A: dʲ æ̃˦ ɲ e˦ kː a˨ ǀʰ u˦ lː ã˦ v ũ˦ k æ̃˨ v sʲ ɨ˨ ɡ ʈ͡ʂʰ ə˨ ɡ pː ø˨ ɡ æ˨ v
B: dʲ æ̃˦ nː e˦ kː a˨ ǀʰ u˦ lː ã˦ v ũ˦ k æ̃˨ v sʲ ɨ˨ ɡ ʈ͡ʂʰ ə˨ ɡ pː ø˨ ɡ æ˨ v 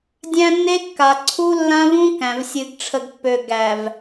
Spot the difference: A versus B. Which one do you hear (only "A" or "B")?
B